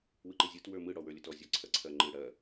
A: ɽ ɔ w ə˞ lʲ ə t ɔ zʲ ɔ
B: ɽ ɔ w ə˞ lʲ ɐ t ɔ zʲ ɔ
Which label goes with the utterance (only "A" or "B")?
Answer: A